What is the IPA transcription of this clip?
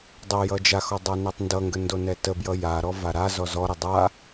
dˤ ʌ j ʌ d͡ʒ a x ɔ dˤ a n ɛ tˤ n d ʌ ŋ ɡ ə n d o n ɛ t ə b j ʌ j a ɾ ɔ v a ɾ a z ɔ z ɔ ɾ ə dˤ a

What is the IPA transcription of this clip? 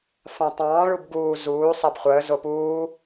f ã tˤ ɑ̃ː ɭ u b ɡ uː z uː sˤ a b χʷ əː z o p uː

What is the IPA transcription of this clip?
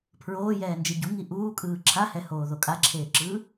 pʰ ɹ oː j ɛː n d͡ʒ e ɟ u ŋ i ʔ uː kʼ ɯː ǁʰ a h ɛ h oː ð o kʼ a ǁʰ eː ǁ ɯː

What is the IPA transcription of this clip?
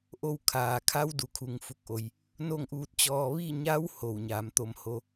ʔ o˧ w kʰ aː˩ kʰ a˧˥ w d u˩ kʰ u˩ ŋ f u˧˩ k̚ ʔ o˩ j | n o˥˨ ŋ ʔ uː˧ t̚ t͡ɕ ɔː˧ ʋ i˥˨ ɲ a˧˥ w h o˧˩ w ɲ aː˩˧ m t̪ o˧ m h o˧˥

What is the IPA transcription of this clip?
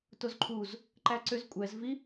t o z ǃʰ u z | ǃ æ ǀ ʏ z kʷʼ ɛ z v i

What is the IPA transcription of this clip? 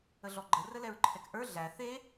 ə ɮ ɔ ɡ͡ǃ ə r ə l ɛ ɹ ǃʰ ɛ k ʔ ə˞ ɮ æ θ e

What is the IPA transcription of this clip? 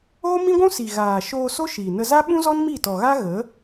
oː˦ m ĩ˦ ɡʷ ũ˦ s i˨ ɣ aː˨ ʃ oː˧ s o˦ ʃ iː˨ n ə˧ z a˦ ɓ ũ˦ z ɔ˦ n m i˦˨ t ɔ˨ ɣ a˦ ɣ ə˨˦

